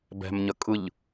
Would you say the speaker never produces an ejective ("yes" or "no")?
no